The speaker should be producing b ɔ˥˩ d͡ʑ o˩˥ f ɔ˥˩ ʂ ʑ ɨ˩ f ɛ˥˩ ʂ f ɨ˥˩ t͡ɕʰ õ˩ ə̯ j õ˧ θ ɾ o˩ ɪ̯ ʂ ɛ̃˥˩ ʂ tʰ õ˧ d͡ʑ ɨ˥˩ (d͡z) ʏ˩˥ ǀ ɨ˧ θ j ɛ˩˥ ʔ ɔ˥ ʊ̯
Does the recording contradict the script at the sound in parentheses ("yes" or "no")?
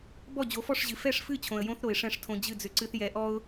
no